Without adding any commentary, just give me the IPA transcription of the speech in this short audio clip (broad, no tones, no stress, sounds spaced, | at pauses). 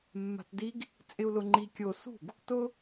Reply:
mː a̤ t d i ɡ | t͡sʼ ɪ u̯ l ʊ ŋ͡ǃ i kʲ o s ṳ ɡ | t ʊ